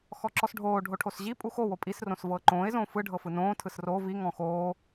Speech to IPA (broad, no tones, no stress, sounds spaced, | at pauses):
x ɔ ǁ ɔ s ɖʱ oː ɖʱ o ʈʰ o s ʑ i pʼ u x o w o pʼ i s r õ s v ɤː ǃ õː ɪ̯ z õː f ɯ ɖʱ ɤ f ɯ n õː tʰ ɯ s r o v i ŋ ɔ̃ x oː